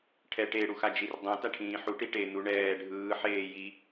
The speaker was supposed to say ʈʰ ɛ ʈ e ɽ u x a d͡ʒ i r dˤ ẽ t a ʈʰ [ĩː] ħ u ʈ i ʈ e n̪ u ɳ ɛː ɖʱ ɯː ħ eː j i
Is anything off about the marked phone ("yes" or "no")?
no